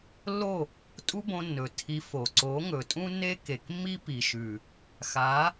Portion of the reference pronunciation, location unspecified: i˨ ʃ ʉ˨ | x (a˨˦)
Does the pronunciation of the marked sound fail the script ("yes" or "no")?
no